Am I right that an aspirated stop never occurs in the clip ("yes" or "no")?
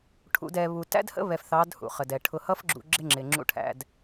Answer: no